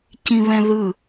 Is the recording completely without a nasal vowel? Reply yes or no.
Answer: no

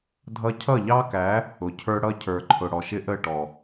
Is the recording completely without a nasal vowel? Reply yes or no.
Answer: yes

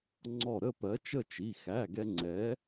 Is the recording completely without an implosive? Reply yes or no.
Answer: yes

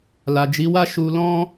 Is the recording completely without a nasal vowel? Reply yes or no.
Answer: no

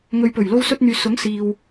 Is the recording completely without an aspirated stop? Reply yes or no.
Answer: yes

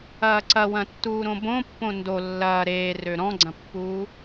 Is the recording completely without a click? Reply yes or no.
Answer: no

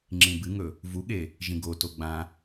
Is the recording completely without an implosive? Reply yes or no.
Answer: no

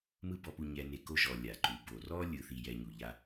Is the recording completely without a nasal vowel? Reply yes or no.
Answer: yes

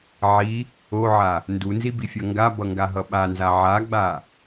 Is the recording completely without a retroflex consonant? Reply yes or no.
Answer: yes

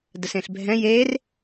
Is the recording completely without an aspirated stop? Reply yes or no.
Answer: yes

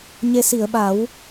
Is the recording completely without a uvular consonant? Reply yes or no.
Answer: yes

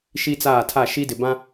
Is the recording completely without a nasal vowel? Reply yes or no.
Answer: no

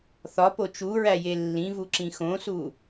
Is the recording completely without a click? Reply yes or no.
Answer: no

